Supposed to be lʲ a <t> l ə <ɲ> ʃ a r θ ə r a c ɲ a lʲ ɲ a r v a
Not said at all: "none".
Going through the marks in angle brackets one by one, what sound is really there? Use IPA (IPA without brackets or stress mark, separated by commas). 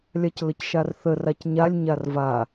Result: c, c